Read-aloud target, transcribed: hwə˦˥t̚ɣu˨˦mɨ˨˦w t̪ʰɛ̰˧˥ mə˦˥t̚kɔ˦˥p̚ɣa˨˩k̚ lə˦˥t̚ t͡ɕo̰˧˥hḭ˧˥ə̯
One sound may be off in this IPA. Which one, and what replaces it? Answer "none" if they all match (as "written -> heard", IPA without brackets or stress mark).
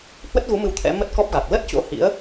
none